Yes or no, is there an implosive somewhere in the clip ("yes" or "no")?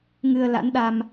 yes